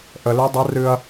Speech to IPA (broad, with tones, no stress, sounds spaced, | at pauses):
ʔ ə˧ l ɨ˦˥ dˤ ɪ˦˥ r ɨ˧ ɐ̯